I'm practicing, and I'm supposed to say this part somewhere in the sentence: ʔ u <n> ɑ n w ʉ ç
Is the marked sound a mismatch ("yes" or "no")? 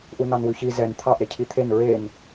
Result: no